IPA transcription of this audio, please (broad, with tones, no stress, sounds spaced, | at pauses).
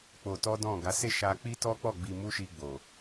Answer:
k͡p o˧ t ɔ˦ d ɔ̃˦˨ ɡ a˨˦ s e˦˨ ʃ a˧ k͡p i˦ t ɔ˦ k͡p ɔ˦˨ ɡ͡b i˧ m u˦ ʃ i˧ ɡ͡b o˨